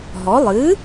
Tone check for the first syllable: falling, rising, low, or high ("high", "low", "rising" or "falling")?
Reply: rising